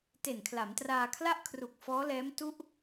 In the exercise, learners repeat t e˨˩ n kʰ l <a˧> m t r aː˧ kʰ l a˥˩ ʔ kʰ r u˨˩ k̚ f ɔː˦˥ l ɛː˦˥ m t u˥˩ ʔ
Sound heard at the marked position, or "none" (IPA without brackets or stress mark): a˩˦